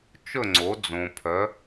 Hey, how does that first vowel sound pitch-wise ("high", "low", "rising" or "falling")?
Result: falling